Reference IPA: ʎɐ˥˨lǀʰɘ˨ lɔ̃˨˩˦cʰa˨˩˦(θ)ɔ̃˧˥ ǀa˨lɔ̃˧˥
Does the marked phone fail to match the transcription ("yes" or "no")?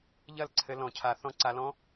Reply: no